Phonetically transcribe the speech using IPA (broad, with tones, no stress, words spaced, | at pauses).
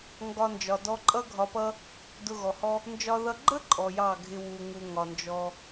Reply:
ŋɡɒ˧nd͡ʒɒ˨dɔ˧ǃʼʌ˦ ɡʱɒ˧pʌ˦ | dʊ˧ɣɔ˨hɔ˦ | nd͡ʒɒ˦ðʌ˦ ɡ͡ǃə˦ ǃʼɔ˨jɑ˦˨ ɡʱɪ˦wu˧ŋu˧ ŋɒ˨nd͡ʒɔ˧